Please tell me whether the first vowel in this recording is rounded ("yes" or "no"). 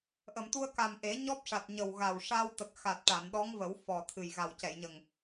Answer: no